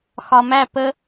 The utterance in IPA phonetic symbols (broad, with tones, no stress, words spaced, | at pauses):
xɒ˨mæ˦˨ pə˦